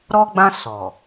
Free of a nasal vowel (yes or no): no